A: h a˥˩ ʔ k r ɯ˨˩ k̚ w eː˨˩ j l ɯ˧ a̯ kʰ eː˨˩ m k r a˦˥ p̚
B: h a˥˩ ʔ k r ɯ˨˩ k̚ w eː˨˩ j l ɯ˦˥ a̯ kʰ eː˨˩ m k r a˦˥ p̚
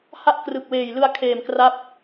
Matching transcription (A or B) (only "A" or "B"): A